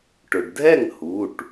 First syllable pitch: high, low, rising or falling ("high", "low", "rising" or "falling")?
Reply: low